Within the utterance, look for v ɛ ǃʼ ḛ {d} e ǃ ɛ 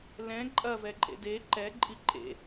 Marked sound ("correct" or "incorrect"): correct